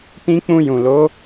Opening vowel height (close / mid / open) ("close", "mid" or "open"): close